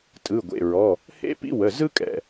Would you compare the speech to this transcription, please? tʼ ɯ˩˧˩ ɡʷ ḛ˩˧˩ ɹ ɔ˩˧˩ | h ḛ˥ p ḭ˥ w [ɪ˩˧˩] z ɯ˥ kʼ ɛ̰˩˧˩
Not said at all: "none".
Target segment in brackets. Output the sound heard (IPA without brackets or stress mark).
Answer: ə˩˧˩